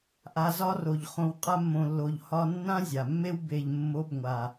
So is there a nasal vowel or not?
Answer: yes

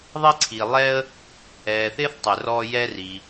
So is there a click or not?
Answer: yes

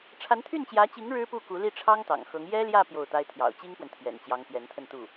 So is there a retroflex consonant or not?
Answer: yes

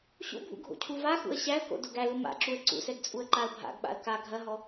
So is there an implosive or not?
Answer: yes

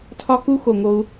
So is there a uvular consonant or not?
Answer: no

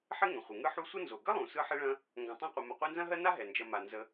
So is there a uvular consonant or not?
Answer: yes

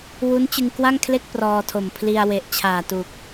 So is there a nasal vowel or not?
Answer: no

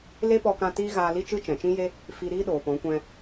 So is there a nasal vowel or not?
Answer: yes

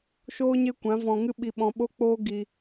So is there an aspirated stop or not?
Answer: no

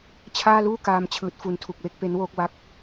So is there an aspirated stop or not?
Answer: yes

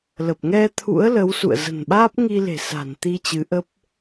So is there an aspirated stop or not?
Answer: yes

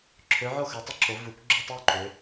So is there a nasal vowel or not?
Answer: no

